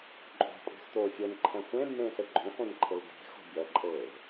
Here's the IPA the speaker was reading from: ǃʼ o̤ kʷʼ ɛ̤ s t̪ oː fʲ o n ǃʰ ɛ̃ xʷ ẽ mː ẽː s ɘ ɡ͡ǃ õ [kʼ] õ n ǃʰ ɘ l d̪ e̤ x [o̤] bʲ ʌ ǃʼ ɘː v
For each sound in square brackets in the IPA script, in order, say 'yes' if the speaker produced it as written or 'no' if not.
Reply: no, yes

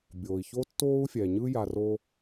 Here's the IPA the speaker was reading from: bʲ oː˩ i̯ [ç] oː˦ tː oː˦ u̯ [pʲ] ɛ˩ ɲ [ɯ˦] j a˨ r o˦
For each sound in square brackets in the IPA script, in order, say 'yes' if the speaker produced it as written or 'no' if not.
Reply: yes, no, yes

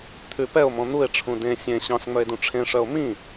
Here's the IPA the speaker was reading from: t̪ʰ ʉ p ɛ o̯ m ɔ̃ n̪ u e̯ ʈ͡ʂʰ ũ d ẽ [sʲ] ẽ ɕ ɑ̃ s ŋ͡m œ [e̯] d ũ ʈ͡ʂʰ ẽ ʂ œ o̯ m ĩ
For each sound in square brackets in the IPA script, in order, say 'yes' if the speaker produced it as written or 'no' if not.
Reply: yes, yes

